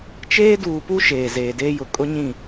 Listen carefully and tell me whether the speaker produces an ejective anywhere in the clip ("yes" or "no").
yes